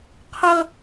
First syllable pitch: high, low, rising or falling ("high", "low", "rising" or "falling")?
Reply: high